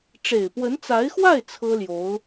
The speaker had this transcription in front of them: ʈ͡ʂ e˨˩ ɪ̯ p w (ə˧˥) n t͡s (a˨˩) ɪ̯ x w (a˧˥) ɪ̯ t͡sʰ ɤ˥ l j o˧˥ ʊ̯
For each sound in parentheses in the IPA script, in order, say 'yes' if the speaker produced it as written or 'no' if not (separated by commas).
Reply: yes, no, no